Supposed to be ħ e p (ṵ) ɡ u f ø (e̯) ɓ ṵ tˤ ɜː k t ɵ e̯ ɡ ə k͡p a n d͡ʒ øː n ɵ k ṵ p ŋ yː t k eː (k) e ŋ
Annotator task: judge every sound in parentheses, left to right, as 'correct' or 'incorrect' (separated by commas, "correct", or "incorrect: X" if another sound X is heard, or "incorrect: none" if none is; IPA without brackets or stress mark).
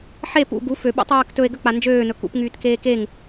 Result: correct, incorrect: none, correct